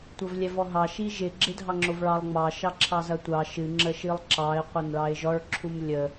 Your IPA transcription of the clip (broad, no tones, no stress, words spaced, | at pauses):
tʷɐvlʲɛvɔɦɑ ʃiʒɪ ɡ͡ǁɪdʱɑŋ͡ǁovɭɑlˠ ŋ͡mɑ ʃɑǁʰɑzɐtʷɑ ʃɨ ŋ͡ǁəʃɨlˠǁɑɪ̯ qʷɐnɭɑɪ̯ʒɔɭ ǁʰumlʲə